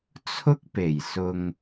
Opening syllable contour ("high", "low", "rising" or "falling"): high